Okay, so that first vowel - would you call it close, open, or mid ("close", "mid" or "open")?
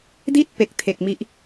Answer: close